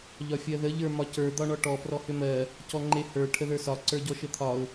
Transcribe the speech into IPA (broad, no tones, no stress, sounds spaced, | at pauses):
ʎ ɒ fʲ ɜ ð ə ʎ ə˞ m ɒ c ə˞ d̪ ɒ ɳ ɔ ʈ ɔ p r ɔ h ʏ m ɜ | c ɔ ŋ͡ǃ e h ə˞ ʈʰ ə ð ə˞ s ɒ ǀ ə˞ ɟ ɔ ʃ ə t̪ʰ ɒ ʊ̯